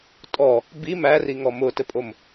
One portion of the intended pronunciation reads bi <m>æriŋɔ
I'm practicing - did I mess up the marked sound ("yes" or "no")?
no